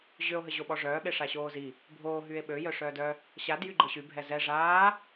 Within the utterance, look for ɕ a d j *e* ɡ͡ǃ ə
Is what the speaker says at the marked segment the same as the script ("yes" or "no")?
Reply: no